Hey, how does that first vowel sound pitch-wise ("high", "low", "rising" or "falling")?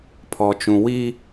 high